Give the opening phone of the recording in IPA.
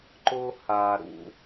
ǃ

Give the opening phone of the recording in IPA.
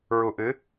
ɹ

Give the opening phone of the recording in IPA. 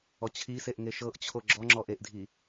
ɔ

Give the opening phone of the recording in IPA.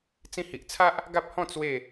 t͡s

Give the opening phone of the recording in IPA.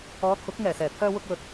ɔː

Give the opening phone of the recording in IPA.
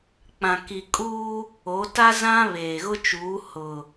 k͡p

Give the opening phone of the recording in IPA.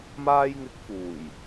m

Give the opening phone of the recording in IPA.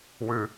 w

